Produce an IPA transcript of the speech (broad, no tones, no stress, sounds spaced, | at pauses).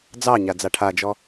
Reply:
d͡z ɑ ɲ a d͡z a ʈʰ a d͡ʒ ɔ